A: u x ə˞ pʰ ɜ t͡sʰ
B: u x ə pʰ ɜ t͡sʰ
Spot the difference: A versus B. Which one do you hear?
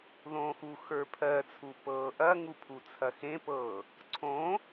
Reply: A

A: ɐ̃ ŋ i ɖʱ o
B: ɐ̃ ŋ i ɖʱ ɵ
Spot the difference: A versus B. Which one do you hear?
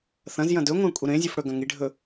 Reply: B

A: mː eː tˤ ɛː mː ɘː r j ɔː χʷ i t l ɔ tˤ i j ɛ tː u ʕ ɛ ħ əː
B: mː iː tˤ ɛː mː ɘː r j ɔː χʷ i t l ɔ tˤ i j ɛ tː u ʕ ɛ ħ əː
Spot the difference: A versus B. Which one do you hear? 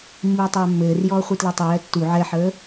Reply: B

